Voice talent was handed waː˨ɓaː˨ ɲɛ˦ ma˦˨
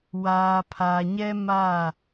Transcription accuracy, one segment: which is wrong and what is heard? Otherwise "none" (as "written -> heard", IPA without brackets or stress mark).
ɓ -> pʰ